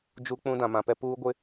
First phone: d͡ʒ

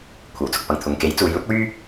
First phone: kʷʰ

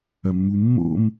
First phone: ɐ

